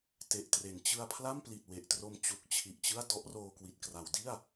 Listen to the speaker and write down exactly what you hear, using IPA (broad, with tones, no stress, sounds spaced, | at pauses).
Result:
t e˨˩ ʔ t r e˩˦ n t͡ɕ ɯ˧ a̯ pʰ l a˥˩ m p l i˨˩ t̚ w e˨˩ ʔ t r o˧ m t͡ɕ u˨˩ k̚ t͡ɕʰ i˨˩ ʔ t͡ɕ ɯ˥˩ a̯ d ɔ˦˥ ʔ r oː˧ k w i˨˩ t̚ k r a˩˦ w d i˥˩ a̯